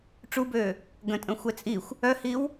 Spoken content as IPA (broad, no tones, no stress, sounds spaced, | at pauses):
ʈ͡ʂ u b øː | ɡ ə̃ tʼ ə̃ xʷ ɛ t͡sʼ i xʷ | œ h i w